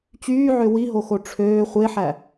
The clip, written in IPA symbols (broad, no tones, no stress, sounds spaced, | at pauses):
t͡ɕ yː ʕ ø w i ɦ o x o ʈ͡ʂʰ øː χʷ e ħ æ